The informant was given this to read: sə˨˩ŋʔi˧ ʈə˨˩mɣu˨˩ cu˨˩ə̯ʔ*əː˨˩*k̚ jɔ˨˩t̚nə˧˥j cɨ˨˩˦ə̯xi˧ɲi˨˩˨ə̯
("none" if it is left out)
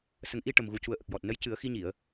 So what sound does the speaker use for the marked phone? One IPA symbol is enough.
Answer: ə˨˩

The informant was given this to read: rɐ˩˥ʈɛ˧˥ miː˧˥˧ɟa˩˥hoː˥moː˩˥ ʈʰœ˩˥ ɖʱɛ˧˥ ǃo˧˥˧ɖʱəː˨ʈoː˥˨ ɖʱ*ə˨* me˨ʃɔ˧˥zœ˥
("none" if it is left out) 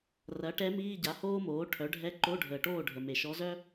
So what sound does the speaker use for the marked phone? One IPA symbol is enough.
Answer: ə˨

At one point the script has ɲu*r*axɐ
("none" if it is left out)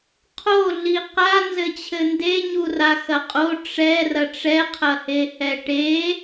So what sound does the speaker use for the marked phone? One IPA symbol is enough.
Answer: r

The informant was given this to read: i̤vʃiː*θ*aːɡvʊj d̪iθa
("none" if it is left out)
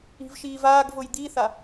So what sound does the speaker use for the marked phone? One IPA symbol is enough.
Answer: v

